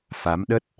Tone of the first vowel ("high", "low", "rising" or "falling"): rising